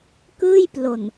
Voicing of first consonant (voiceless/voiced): voiceless